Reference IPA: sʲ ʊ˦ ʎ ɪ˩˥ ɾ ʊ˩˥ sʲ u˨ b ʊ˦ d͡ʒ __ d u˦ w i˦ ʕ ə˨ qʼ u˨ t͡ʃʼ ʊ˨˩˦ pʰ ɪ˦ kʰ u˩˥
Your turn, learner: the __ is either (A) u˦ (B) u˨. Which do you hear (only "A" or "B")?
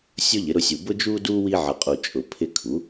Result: A